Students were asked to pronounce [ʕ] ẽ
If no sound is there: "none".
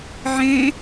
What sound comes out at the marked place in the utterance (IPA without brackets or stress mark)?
ʕ